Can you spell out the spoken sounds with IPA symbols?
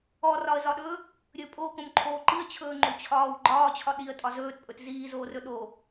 ɔ r ɒ ə̯ z ɒ ɗ ɵː | ɾʲ ɵ pʼ o k õ m ǃʰ oː ǃ i ə̯ t͡ɕʰ ɵː ŋ͡ǃ o t͡ɕʰ ɒː w ɡ͡ǃ ɒː t͡ɕʰ ɒ ɗ i ə̯ tʼ ɒ z ɵː t pʼ ɵ t z iː z oː r ɵ ɗ o

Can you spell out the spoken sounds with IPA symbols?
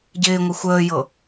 ɟ ɪː ŋʷ ɪ xʷ əː j ɤ

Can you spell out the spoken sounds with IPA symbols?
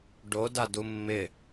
ɖ o d a d u mː ɪ

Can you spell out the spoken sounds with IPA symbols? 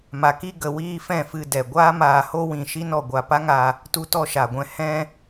m a˨ k i˧ ɡ ə˨ w iː˧ f ɛ̃˦˨ f ɨ˧ d ɛ˨ ɡʷ aː˦ m aː˧ h o˦ w ĩ˧ ʃ i˦ n ɔ˦˨ ɡʷ a˦˨ p a˦ ŋ a˧ | t u˧ t ɔ˧ ʃ a˨ ɡʷ ɛ̃˧ h ɛ̃˧

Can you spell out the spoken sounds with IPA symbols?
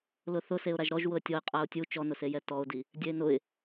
l ʊ θ ʊ s e ʊ̯ ɾ a ʒ ɾ ɔ ʒ w ʊ ə̯ tʲ ɔ ɪ̯ qʼ a ʊ̯ tʲ u t͡ʃ ɔ n ʊ s e j ɛ t ɔ ʊ̯ d i | dʲ ɛ ɪ̯ n ʊ ɪ̯

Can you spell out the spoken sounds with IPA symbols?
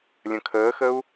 lʲ ə̃ kʰ əː x ə u̯

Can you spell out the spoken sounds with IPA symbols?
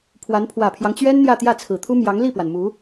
pʰ w a˧˥ n pʰ w ä˨˩ pʰ j ɑ˦ ŋ t͡ɕ ɥ ɛ˥ n n̪ j ä˥˧ t̪ j ä˥˩ t͡sʰ ɹ̩˨˩ t̪ʰ u˥ m j ɑ˧˥ ŋ l i˥˩ p w a˩ n m u˧˥

